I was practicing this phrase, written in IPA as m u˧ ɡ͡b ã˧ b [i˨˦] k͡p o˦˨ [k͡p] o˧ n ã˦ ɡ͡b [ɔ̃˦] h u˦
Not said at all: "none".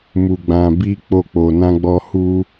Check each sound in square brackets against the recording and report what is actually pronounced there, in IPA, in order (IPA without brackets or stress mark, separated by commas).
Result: i˦, k͡p, ɔ˦